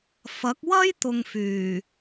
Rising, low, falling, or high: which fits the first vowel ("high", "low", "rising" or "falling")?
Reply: rising